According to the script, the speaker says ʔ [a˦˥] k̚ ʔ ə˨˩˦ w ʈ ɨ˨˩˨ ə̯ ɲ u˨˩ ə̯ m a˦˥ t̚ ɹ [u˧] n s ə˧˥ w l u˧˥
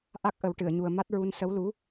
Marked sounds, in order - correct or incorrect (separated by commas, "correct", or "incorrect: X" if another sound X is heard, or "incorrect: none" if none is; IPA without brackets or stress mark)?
correct, correct